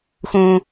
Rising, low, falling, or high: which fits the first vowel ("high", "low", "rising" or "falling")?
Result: high